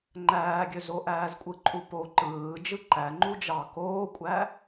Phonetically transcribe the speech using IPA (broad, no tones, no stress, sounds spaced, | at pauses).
ŋ͡ǃ æː ɡʲ ø z o ʔ æː z kʷʼ ɯ ǃʼ u p o ǃ ɯː d͡ʒ ɯ ǃ æ ŋ͡ǃ u d͡ʒ ɑ k oː kʷʼ æ